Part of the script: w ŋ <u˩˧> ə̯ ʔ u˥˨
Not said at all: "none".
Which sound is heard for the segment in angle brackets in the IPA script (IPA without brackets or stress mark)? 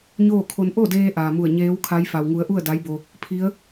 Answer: u˩˧